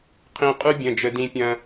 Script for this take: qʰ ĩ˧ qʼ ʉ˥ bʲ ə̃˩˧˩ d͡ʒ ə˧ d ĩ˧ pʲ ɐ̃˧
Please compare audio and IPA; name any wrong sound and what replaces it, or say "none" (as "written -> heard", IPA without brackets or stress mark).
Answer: none